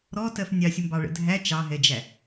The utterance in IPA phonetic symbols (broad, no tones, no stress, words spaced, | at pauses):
ɾɔtɜf nʲɑsʲəmbɑɭə̰ dʱæ t͡ʃɑɦɛd͡ʒæ